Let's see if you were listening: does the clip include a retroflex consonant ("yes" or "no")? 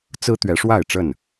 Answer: yes